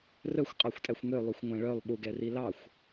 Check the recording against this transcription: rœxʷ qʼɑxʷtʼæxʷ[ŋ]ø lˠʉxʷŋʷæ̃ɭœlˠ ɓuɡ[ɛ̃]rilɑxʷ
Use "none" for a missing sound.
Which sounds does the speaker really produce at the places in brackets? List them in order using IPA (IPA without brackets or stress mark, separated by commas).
ŋ, ɛ